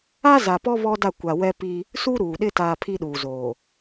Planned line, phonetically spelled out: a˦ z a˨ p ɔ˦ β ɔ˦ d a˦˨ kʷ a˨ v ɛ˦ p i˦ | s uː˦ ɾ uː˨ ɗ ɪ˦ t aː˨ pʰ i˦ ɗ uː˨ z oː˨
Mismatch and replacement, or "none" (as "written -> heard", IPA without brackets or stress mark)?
v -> w